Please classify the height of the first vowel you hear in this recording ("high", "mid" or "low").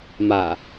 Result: low